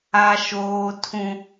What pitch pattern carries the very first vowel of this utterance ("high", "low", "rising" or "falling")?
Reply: high